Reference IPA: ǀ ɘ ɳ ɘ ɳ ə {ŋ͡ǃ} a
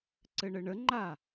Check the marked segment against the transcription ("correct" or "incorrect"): correct